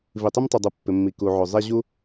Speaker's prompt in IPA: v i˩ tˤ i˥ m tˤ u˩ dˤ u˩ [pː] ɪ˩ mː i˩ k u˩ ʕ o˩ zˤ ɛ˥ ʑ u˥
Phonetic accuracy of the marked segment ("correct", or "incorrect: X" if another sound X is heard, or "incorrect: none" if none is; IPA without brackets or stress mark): correct